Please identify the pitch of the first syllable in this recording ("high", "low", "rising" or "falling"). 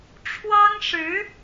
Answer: high